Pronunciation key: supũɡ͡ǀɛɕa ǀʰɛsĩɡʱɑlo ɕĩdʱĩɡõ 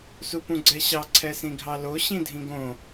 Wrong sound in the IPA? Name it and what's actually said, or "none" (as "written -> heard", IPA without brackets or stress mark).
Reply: a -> ɑ